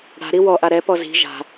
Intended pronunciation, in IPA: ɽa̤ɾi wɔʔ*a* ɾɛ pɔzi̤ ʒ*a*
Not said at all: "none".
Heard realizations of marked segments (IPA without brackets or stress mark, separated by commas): a, a̤